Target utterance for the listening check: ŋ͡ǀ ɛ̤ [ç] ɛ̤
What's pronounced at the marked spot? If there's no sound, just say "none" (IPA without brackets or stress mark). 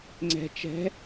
t͡ʃ